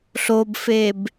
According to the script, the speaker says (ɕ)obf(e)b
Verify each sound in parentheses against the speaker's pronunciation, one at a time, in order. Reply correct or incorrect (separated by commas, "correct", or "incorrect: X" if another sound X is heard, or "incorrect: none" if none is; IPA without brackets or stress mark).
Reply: incorrect: ɬ, correct